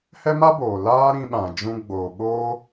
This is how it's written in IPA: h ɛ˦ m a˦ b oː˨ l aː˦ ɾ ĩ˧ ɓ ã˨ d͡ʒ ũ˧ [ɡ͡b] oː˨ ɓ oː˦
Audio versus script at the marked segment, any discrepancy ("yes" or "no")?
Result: no